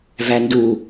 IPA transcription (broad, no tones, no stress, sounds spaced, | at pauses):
v æ n d u